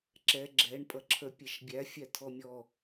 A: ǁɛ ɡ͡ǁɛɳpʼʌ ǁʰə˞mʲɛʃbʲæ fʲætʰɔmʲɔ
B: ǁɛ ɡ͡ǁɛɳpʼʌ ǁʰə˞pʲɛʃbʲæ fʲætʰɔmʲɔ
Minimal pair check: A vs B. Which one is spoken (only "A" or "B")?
B